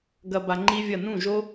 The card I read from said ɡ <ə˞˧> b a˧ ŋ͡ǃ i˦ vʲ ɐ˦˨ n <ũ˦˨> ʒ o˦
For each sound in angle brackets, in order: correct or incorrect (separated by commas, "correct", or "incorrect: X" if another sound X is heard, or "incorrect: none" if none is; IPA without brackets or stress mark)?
incorrect: ɐ˧, correct